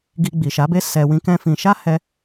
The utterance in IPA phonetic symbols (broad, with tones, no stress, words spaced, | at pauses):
ɡi˧ɡ͡bi˨ʃa˨˦be˦ sɛ˧ wĩ˦kɛ̃˦fĩ˧ ʃa˦ hɛ˧